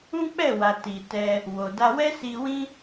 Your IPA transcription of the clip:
ũ˦ k͡p ɛ˦˨ w a˨ t i˨ t ɛ˧ | w o˨ d a˧ w ɛ˦ s i˧ w ĩ˦

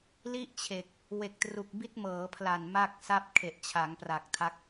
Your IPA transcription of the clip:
l i˥˩ ʔ t͡ɕʰ e˨˩ k̚ | w e˨˩ k̚ t r u˨˩ k̚ b i˦˥ t̚ m ɤː˩˦ pʰ l a˨˩ n m a˥˩ k̚ s a˥˩ p̚ kʰ e˨˩ ʔ t͡ɕʰ a˩˦ ŋ p r a˨˩ k̚ tʰ a˦˥ k̚

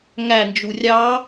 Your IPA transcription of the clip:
ŋ æ n d͡ʒ u rʲ ɑ

